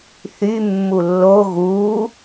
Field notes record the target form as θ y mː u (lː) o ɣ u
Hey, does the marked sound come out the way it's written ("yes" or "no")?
yes